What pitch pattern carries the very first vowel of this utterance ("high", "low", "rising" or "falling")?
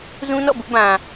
high